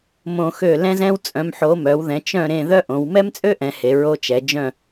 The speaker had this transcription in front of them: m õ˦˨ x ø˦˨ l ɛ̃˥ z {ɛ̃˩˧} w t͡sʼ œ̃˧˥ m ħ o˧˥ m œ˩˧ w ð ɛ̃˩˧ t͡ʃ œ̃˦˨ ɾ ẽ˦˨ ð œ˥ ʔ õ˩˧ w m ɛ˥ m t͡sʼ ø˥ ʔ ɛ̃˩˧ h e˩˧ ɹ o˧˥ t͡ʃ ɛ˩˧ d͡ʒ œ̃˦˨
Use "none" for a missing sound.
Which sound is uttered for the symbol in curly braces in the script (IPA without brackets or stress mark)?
ɛ̃˥